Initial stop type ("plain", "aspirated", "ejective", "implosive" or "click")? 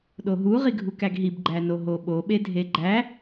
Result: implosive